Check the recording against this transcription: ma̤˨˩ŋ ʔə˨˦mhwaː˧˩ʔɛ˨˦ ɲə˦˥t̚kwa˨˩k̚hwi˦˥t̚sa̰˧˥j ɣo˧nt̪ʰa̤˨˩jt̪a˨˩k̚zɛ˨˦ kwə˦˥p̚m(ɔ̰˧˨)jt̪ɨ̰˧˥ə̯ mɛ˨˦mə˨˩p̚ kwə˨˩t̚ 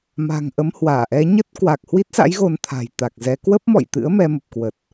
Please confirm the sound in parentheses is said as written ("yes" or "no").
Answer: yes